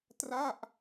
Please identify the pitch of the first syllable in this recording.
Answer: falling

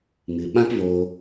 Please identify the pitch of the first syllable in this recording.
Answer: low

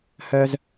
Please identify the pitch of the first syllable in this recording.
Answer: high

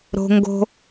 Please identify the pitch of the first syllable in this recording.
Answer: high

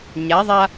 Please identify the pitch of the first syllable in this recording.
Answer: rising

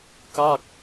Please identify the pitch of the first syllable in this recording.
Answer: falling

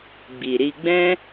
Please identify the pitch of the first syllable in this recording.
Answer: low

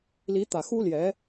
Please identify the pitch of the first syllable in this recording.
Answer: rising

